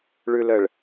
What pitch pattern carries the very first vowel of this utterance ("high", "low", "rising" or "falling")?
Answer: low